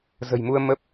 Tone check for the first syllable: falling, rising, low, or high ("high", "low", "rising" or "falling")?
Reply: low